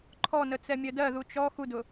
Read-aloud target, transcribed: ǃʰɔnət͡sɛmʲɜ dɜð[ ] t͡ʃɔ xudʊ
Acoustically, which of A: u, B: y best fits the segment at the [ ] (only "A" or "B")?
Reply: A